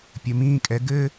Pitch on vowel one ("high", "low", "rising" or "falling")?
low